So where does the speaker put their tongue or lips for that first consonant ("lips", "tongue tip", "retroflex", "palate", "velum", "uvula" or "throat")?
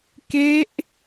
velum